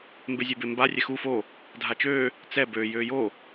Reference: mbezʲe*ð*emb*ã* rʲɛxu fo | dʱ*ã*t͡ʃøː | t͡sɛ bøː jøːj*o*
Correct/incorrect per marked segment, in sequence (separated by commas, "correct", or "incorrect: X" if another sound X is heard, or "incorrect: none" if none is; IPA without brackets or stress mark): incorrect: b, incorrect: a, incorrect: a, correct